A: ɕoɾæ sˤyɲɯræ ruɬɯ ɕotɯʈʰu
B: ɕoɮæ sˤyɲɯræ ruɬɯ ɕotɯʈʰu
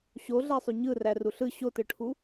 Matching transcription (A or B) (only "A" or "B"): B